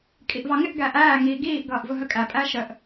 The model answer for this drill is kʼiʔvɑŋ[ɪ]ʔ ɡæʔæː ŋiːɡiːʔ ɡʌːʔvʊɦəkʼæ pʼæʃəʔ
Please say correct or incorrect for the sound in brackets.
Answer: correct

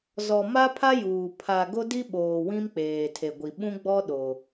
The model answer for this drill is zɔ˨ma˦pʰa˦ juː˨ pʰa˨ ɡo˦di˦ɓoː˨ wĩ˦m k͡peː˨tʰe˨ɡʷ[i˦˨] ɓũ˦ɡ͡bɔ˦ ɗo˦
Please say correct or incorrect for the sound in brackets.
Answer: incorrect: i˨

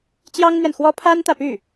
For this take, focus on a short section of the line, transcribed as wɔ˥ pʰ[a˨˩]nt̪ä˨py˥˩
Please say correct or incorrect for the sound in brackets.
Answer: incorrect: a˥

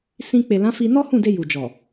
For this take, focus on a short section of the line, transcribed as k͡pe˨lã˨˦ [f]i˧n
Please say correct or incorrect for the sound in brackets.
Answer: correct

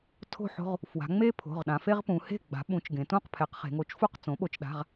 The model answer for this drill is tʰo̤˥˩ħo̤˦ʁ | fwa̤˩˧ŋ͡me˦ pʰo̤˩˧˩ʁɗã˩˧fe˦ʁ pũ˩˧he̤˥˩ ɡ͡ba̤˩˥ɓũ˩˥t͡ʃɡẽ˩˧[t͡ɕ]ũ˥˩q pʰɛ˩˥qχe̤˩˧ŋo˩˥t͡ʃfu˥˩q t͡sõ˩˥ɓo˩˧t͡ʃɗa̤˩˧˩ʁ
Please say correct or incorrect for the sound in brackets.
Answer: incorrect: t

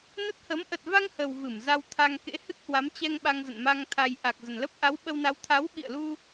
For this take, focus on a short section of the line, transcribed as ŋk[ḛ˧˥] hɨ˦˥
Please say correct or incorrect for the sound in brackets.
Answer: correct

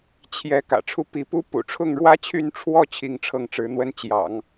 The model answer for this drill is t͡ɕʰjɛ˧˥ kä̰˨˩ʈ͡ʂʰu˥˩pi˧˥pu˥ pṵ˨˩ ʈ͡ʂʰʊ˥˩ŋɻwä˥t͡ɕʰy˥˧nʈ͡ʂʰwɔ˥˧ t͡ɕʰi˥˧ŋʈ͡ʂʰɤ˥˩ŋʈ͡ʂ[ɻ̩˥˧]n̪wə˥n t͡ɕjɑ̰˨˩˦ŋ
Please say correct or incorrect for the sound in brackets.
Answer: incorrect: ɻ̩˧˥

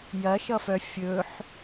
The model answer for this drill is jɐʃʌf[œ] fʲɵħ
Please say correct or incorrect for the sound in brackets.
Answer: correct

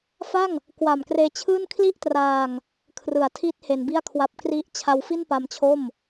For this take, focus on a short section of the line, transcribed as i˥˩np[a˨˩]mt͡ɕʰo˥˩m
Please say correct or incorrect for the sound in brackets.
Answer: incorrect: a˧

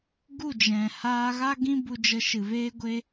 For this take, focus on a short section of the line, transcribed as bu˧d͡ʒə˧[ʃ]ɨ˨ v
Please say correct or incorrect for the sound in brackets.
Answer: correct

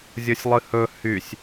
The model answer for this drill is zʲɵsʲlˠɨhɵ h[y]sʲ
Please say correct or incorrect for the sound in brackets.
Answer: correct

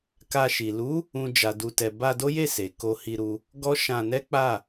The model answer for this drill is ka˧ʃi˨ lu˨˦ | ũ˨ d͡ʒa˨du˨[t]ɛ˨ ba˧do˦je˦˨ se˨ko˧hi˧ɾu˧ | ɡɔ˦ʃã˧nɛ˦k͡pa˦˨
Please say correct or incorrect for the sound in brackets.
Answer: correct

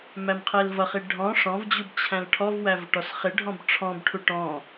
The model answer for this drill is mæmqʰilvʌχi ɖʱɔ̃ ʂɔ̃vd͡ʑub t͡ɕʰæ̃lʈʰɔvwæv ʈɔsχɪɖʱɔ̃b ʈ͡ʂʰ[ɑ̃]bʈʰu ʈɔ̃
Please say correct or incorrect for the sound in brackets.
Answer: incorrect: ɔ̃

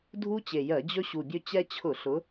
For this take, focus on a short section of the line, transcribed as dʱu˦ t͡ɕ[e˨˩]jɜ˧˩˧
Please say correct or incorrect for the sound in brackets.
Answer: correct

